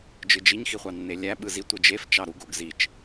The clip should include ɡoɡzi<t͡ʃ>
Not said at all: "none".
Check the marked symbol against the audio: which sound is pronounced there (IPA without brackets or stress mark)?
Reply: t͡ʃ